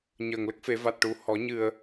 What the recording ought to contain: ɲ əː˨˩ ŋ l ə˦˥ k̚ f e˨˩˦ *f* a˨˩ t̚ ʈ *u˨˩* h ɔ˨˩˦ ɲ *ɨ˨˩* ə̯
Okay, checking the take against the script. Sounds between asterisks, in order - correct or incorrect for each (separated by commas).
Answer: incorrect, correct, correct